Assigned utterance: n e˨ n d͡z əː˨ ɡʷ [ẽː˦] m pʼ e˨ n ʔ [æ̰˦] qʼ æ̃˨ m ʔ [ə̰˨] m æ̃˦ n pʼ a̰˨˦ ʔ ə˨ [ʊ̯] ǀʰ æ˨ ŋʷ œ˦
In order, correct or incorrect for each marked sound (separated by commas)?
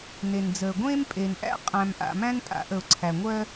correct, correct, incorrect, correct